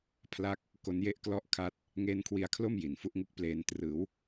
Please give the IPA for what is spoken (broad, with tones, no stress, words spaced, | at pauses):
pʰla˥˩k̚ | ko˦˥nje˥˩ʔklɔ˥˩ʔ kʰa˥˩t̚ | ŋeː˦˥nkʰwi˧a̯kʰlo˥˩m ji˨˩nfu˦˥ʔŋu˦˥k̚pleː˧n trɯː˩˦w